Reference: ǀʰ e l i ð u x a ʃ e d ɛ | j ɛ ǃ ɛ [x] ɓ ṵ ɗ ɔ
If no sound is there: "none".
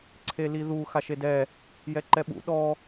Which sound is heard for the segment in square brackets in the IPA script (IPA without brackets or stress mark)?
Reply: none